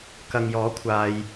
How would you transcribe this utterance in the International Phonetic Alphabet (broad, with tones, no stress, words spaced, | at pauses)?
kɐ˨ŋjɔː˨˥ kʷʰaː˧j